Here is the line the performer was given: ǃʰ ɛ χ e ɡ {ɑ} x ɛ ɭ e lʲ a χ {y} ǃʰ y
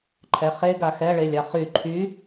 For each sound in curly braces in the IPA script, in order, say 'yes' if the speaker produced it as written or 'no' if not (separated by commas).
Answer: no, yes